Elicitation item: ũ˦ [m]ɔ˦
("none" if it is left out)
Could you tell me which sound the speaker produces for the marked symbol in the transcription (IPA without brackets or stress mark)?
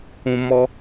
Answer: m